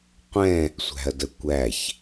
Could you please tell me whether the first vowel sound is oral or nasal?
nasal